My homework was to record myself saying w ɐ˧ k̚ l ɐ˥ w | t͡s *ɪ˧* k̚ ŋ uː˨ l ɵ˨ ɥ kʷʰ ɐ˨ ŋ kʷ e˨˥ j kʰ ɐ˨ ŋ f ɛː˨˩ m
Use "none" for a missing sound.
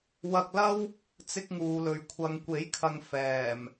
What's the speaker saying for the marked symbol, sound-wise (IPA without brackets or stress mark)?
ɪ˧